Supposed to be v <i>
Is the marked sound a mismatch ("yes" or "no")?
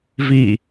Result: no